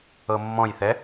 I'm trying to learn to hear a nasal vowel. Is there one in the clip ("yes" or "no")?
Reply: yes